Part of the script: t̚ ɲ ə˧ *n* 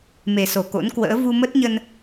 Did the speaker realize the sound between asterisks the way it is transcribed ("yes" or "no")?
yes